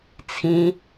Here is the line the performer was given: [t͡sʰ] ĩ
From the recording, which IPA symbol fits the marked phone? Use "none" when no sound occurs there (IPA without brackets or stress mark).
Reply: t͡sʰ